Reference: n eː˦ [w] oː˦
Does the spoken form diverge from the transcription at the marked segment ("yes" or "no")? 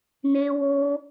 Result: no